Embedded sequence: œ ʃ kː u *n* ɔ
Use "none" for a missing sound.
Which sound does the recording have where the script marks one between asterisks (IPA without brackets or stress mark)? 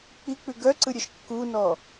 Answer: n